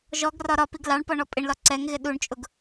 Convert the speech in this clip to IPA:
ʒ ɔ ɡ r ɒ ɾ ɒ p i ɡ l ɑ ɳ p ɔ ɳ ɔ pʼ ɪ ɳ l ɒ ǀ ɛ ŋ ɣ ɪ ɗ u ɳ t͡ʃʼ ʊ ɡ

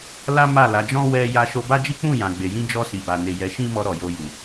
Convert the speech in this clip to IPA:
l a˦ m a˦˨ l a˨˦ d͡ʒ ɔ̃˦ w ɛ˦ j a˧ ʃ o˧ b a˦ d͡ʒ i˦ k͡p ũ˦˨ j ã˨ ɡ͡b e˨ j ĩ˧ d͡ʒ ɔ˧ s i˨ b a˨ n e˨ j ɛ˨˦ ʃ ĩ˦ m ɔ˧ ɾ ɔ˨ j o˧ j u˨

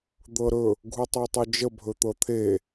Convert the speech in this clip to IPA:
d̪ ɤ ɾ ɵ | ɡʱ u tˤ o tˤ ɵ d͡ʒ ə bʱ ɵ t̪ ɤ t̪ʰ e

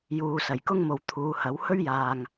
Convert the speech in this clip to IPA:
j uː˨ s ɐ˨˩ j k ʊ˥ ŋ m o˨ w t̪ʰ uː˨˧ h ɐ˨˥ w h ɵ˥ ɥ j aː˨ ŋ

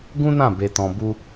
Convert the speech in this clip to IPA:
ɡ ũ˦ n ã˦˨ b e˧ t ɔ̃˧ b u˧

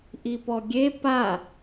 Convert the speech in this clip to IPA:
ʔ i p ɔ ɡʲ e p a

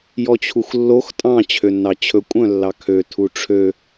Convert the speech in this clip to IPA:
j ɔ t͡ɕʰ u x lː o x tʼ ɑ̃ t͡ɕʰ ø nː ɑ t͡ɕʰ ɵ kʷʼ œ̃ lː ɑ kʰ ø tʰ u ʈ͡ʂʰ ø

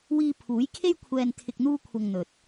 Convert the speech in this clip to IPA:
w iː˧ pʰ uː˨˥ j kʰ e˥ j kʷʰ ɛː˧ n t̪ʰ ɪ˧ k̚ n̪ uː˥ kʷʰ ɐ˧ ŋ n̪ ɵ˨ t̚

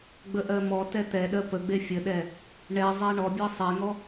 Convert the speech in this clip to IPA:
ɡ͡b ə ʔ ɜ m ɔ t ɛ t̪ ɛ ɗ ɜ p ə ɡ͡b e fʲ ə ɗ ɛ | ɳ ɛ zˤ ɛ ɳ ɔ bʲ e sˤ e ŋ ɔ

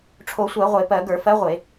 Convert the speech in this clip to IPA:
ʈ͡ʂʰ o˧˩˧ sʷ ɜ˧˩˧ ʁʷ e˧˩˧ p ɜ˧˩˧ ɡ ə˞˧˩˧ f ɜ˧˥ ʁʷ e˧˩˧

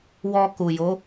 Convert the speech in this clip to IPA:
w ɔ˧ k u˨ j o˨˦

